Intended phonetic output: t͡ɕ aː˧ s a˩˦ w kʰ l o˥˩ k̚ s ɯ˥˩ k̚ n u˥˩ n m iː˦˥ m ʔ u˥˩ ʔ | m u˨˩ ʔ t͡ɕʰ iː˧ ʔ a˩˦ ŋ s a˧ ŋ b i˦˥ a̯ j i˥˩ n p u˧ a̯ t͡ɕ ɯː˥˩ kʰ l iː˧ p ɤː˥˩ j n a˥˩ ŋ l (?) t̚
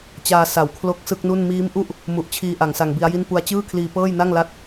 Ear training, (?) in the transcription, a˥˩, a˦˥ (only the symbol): a˥˩